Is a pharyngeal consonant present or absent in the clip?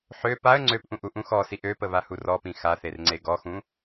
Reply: present